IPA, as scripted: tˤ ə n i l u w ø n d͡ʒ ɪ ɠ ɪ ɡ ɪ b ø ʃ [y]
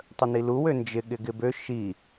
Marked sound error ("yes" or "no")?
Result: yes